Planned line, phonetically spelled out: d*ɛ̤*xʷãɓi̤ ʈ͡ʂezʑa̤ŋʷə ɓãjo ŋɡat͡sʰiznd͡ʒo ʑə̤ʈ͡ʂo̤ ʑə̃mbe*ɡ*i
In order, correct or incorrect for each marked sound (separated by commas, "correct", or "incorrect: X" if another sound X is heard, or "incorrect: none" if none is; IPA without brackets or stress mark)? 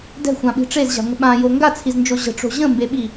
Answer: correct, incorrect: ɓ